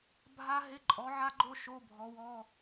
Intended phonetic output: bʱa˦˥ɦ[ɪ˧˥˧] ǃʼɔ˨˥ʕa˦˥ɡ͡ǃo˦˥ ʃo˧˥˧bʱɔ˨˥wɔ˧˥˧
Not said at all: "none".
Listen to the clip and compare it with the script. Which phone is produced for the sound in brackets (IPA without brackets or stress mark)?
ɪ˧˥˧